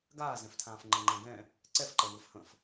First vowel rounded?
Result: no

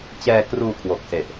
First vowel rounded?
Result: no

